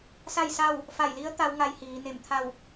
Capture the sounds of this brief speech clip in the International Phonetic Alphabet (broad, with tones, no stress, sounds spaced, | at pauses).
s a˥˨ j s a˥˨ w | f a˧˩ j l i˧˥ ə̯ t̪ a˧˥ w ŋ a˧˥ j h iː˩˧ n e˧˩ m t̪ʰ a˥˨ w